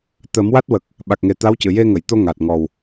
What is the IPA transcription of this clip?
t̪ ə˨˩˦ m w a˦˥ t̚ w ə˨˩ k̚ | ɓ a˨˩ k̚ ŋ e˨˩ t̪ a˧˥ w c ɨ˨˩˨ j e˧ ŋ ə˨˩˨ j t̪ o˧ ŋ a˨˩ t̚ ŋ ɔ˨˩ w

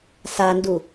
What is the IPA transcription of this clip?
s a n d u

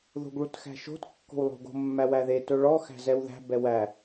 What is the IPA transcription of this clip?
ð o̤ ɡ ɭ u t x æ̤ ʃ o̤ t kː o̤ w lˠ o̤ ɡ o̤ mː æ w æ ð e t ɵ ɭ ɔ x æ̤ z ɛ w ð æ̤ b ɛ w æ

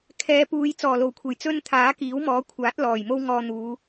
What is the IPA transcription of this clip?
kʰ ɛː˨˧ p uː˨˧ j t͡s ɔː˨˩ l o˨˩ w kʷʰ e˨˩ j t͡s ɵ˥ n t̪ʰ aː˨˥ k iː˨˥ w m ɔː˨˥ kʷʰ aː˨˥ t̚ l ɔː˨˩ j m o˥ w ŋ ɔː˧ n̪ uː˨˧

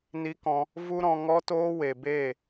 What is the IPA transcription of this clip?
n i˦ k ɔ̃˧ | v u˦ ɾ ɔ̃˧ ŋ ɔ˦ t oː˦ w e˨ b eː˦˨

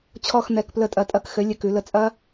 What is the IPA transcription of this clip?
t͡ɕʰ ɔ˦˨ x n̪ ɛ˩˧˩ k p l ə˧˩˧ tʼ ɐ˩˧ tʼ ɐ˧˩˧ k x ɘ˩˥ lʲ ɘ˩˧˩ k ʉ˧˩˧ l ə˩˥ t͡sʼ ɐ˦˥

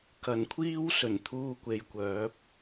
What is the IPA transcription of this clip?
k ɐ˨˩ n kʷʰ iː˥ w s ɵ˨˩ n t̪ʰ uː˧ kʷ e˨˧ j kʷ œː˨˥ p̚

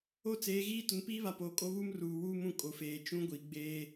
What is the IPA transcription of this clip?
o˦ t͡s eː˨˦ ɣ iː˦ t ʊ˨ n p iː˦ β a˨ p oː˨ kʼ o˦ β u˦ m r uː˨ w uː˦ m ũ˦˨ kʼ o˨ f eː˨ t͡ʃ ũ˦ ɡʷ i˨ ɡ͡b eː˦

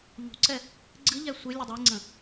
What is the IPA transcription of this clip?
ʎ ṳ ǀ ɛ | ɡ͡ǀ ɨ ʎ ɛ sʷ e lʲ ə dˤ e ŋ͡ǀ ə̃

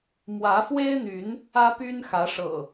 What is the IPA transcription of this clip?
m w ä˨˦ f w e˦ ɪ̯ n̪ y˨˦ n | ä˦ p y˦ n x ä˨˦ ʂ ɤ̰˨˩

